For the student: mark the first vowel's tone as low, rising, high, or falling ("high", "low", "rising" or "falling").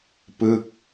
falling